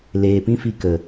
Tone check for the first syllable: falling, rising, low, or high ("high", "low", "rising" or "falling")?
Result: low